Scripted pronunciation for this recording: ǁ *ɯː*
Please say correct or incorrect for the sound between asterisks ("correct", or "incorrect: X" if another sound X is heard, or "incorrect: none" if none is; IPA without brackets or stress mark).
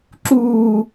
incorrect: uː